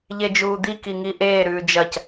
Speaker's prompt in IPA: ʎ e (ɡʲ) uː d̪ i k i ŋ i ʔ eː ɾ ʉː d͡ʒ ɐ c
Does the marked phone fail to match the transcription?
yes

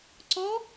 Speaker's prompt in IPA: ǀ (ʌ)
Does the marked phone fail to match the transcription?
yes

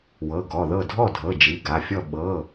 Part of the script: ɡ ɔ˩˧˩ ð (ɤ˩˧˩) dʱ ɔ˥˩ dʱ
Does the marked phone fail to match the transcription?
yes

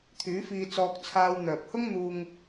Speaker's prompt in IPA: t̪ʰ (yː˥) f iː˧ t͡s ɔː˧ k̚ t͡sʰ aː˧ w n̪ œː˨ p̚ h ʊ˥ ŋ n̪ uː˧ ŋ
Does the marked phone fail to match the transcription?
yes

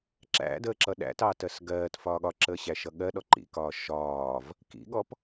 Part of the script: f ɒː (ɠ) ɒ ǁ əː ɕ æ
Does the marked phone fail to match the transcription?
no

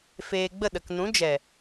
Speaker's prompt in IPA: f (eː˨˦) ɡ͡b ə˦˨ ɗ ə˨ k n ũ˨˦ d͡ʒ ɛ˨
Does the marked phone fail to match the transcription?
yes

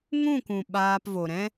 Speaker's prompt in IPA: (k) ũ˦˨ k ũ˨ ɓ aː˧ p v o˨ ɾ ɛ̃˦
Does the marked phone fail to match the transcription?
yes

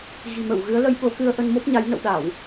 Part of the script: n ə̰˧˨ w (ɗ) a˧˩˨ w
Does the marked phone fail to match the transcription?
no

